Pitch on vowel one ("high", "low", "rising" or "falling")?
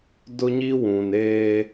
high